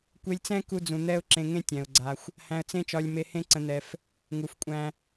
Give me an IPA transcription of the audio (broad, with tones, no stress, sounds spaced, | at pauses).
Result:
kʷ e˧ lʲ t͡s ɛ̃˦ k u˧ d͡z ũ˨ n̪ ɛ˦ ʊ̯ ǁ ẽ˧ ŋ ẽ˦ tʲ ɛ̃˨ ʊ̯ ɡ͡ǀ a˧ xʷ | h æ̃˧ ə̯ t͡s ẽ˦ t͡ʃ ɒ˧ lʲ m e˧ h ẽ˦ ǀ ə̃˧ n̪ ɛ˧ f | ŋ u˨ f kʷʼ æ̃˧